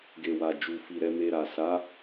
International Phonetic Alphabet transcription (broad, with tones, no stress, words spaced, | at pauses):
ɡe˨wa˨d͡ʒu˨ fi˨ ɾɛ˧me˧ɾa˨ sa˨˦